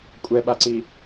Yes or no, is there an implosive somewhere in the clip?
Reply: yes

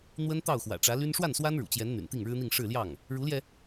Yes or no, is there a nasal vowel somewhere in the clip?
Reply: no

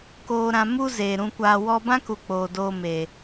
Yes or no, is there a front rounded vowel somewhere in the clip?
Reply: no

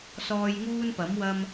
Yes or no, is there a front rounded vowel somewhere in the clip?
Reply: no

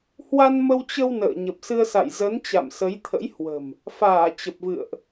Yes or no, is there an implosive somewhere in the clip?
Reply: no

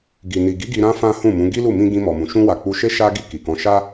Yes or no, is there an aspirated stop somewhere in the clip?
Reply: no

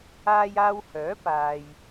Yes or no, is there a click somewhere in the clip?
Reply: no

